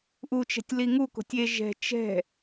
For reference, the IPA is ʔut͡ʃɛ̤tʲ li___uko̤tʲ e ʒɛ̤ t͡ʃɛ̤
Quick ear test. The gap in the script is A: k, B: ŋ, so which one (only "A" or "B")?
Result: B